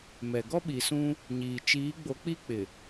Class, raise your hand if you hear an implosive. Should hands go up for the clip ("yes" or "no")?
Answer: yes